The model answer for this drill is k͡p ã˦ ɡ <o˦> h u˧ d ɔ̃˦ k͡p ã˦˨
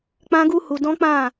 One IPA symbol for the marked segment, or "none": u˦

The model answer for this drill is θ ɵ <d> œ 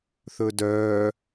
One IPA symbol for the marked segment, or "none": d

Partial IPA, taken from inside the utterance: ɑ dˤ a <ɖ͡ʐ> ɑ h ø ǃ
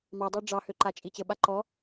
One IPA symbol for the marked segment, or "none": ɖ͡ʐ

